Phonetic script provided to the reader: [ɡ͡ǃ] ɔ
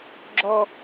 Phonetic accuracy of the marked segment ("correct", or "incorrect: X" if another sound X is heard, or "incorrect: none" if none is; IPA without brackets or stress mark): incorrect: ɡ͡ǁ